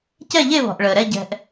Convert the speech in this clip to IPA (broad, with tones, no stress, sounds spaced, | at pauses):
c ɛ˦˨ ʎ e˦˨ β ɔ̤˩ ʔ ɭ əː˩ ɾ ɛ˦˨ ɟ ɛ̤˩ ʔ